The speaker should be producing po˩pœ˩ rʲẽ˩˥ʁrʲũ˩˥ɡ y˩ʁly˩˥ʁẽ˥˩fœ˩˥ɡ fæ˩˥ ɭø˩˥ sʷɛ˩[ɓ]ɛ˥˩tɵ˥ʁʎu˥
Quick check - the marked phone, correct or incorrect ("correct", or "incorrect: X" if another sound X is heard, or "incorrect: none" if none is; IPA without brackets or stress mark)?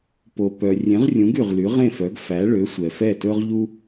incorrect: f